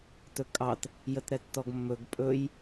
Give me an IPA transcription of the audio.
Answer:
t ɵ kʼ ɑ t | j ə t ɾ ɛ tː ɔ ɡ mː ɵ ɡ pʼ ɵ j

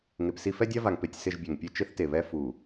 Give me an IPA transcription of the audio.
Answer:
ŋ e˨ p s i˦ f ɛ˦ dʲ a˦ v a˨ ŋ p e˨ tʲ s ɪ˦˨ ʒ bʲ ɛ˨ ŋ pʲ e˦ t͡ʃ ɪ˦ θ t e˨ β ɛ˦ f u˨

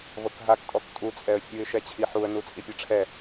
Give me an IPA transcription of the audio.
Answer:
v ɤ k ɦ a k tʼ ɔ k tʼ u t͡sʼ ɛ ə̯ fʲ u ɪ̯ ʃ ɛ t͡ɕʰ i ħ u ə̯ n u t͡sʼ i pʲ ɛ ʈ͡ʂʰ ɛ

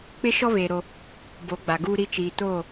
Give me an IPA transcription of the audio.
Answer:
k͡p ɪ˦ ʃ ɔ˦ β eː˨ ɾ o˦ | b o˨˦ ɡ͡b a˨ ɡ uː˦ ɾ i˦ t͡ʃ iː˨ t oː˦˨

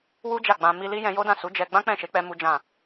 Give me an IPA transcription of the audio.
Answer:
w u˦ d͡ʒ a˦˨ ɡ͡b ã˧ m i˧ l i˦ j ɛ̃˧ j o˦ d ã˦˨ s u˨˦ d͡ʒ ɛ˧ ɡ͡b ã˦ k͡p ɛ̃˦˨ ʃ e˨˦ k͡p ɛ˦ m u˦ d͡ʒ ã˦˨

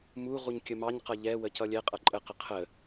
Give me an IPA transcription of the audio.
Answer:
m u ʁ u ɲ kʲ ə m ɑ ɲ q ʌ ʎ ɛ w ə c ʌ lʲ ɛ qʼ ʌ ǃʼ ə q ə qʰ ə

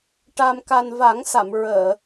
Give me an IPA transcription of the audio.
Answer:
ʈ a˧ m k a˧ n v a˨˩˦ ŋ s a˨˩˨ m ɹ əː˨˩˨

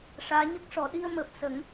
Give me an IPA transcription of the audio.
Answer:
ʂ aː˧˥ ɲ ə˦˥ k̚ ʂ ɔ˨˩˦ ɗ i˧ ə̯ m əː˨˩ p̚ s ə˨˩˦ ŋ

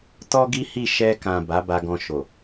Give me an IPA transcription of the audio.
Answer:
t ɔ˦ ɡ i˦ h i˦˨ ʃ ɛ˧ k ã˨ b a˨˦ b a˧ ɡ ɔ̃˧ ʃ o˨

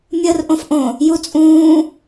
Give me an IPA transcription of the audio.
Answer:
mʲ əː r ʔ õ f ʔ õ | j u t͡sʼ ũː

